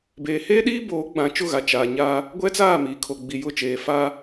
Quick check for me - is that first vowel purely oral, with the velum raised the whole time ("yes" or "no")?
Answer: yes